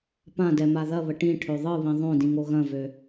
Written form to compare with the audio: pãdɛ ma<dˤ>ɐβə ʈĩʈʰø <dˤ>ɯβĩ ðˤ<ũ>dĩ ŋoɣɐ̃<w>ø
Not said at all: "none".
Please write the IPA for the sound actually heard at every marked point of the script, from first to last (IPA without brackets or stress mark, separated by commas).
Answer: ð, ðˤ, õ, v